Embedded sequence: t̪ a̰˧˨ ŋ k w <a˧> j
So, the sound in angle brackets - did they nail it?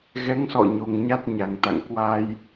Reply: yes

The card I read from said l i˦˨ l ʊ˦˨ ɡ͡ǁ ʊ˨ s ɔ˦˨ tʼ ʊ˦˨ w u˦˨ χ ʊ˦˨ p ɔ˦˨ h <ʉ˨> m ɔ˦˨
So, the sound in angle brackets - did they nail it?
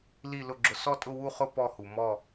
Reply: no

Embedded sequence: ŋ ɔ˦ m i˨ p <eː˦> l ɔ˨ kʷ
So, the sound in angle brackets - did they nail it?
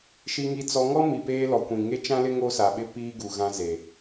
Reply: yes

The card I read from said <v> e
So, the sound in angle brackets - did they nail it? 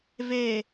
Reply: yes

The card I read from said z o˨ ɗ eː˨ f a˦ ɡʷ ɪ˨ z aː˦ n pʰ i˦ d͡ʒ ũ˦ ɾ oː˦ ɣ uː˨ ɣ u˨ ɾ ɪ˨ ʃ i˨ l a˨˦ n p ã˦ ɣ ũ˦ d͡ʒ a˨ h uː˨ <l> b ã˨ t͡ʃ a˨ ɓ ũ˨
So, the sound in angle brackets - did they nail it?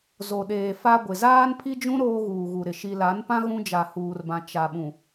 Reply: no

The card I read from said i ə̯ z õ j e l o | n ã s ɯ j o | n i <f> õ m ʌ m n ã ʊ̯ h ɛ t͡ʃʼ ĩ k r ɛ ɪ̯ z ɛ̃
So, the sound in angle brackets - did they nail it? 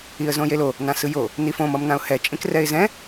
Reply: yes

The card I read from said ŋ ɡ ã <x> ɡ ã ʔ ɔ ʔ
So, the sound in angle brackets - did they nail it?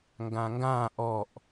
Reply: no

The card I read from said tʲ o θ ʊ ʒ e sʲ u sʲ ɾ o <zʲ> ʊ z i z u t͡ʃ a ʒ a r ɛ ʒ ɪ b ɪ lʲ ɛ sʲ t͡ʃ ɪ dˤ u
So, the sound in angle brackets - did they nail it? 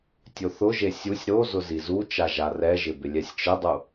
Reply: no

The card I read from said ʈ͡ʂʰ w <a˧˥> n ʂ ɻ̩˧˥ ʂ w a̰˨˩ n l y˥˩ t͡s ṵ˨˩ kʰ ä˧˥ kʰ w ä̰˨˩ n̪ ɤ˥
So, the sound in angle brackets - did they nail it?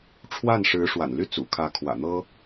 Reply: no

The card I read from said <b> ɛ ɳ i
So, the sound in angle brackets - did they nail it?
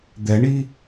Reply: no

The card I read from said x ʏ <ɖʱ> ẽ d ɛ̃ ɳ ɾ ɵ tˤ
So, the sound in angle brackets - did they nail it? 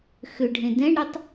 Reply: yes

